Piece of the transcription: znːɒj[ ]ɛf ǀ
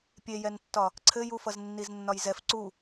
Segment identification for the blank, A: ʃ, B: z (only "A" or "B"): B